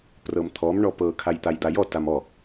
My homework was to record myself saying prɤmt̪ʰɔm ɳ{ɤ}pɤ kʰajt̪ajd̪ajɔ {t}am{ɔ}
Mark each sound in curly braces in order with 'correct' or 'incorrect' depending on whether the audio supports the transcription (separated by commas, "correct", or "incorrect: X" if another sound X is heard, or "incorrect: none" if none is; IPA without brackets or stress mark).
incorrect: ɔ, correct, correct